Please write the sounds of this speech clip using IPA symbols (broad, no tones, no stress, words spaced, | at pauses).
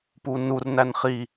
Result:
punur nænχi